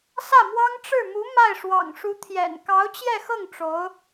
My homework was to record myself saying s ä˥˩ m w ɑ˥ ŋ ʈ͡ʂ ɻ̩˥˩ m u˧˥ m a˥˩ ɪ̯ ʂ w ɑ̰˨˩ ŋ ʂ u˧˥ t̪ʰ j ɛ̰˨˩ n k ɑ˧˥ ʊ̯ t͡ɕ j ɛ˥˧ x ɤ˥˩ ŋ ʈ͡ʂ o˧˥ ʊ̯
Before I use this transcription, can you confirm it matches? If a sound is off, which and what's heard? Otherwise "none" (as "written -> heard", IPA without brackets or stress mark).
none